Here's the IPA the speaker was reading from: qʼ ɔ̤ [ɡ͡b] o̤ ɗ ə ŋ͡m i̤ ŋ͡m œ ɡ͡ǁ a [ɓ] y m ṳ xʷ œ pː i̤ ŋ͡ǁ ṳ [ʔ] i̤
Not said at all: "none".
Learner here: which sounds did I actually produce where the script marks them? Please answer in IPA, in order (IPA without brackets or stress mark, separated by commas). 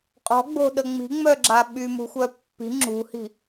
ɡ͡b, ɓ, h